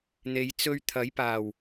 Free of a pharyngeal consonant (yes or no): yes